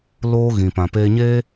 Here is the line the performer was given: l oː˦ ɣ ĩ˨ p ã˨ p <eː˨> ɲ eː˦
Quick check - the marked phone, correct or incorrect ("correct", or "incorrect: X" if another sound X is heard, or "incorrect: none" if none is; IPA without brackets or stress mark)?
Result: incorrect: eː˧